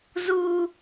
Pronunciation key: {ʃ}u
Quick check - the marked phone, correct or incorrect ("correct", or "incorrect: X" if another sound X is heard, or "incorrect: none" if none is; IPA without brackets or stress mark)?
incorrect: z